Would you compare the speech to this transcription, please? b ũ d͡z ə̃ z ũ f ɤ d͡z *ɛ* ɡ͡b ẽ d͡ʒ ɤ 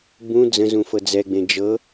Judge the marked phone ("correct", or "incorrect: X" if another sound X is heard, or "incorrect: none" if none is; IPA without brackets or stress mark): correct